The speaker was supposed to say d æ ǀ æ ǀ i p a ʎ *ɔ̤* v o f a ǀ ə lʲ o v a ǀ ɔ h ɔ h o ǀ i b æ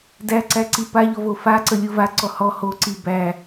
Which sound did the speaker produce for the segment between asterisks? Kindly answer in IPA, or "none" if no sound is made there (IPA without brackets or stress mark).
ɔ